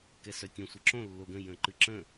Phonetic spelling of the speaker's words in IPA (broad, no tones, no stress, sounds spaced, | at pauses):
k ɛ s œ tʲ ə̃ sʷ ə ǁ õ lː o ɡ ə̃ j ə̃ ǃ ɨ ǁ ə̃